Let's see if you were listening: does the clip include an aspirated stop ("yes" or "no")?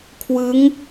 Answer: yes